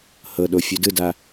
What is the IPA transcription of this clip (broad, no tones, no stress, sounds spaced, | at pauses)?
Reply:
h ɤ ɗ o fʲ u d ɯ d a